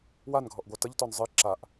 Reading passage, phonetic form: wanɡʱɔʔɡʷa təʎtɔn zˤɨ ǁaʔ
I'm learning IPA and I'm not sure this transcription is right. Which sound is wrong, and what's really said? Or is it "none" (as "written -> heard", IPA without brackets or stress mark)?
none